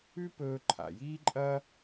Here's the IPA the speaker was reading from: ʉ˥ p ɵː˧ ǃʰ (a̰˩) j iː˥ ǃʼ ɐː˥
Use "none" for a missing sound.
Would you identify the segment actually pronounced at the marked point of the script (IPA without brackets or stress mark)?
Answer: a̰˩